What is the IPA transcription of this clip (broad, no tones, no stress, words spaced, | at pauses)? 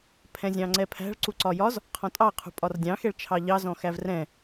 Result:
pʰɛ̃zʲɑ̃ŋ͡ǀɛpʰæ̤ɭ ǀuǀɒjɒz | qʰɔ̃tʼɑ qʰṳpʼɒrdʲɑ̃ xɛɭt͡ʃʰɑʎɑ zɔ̃xævrɛ̃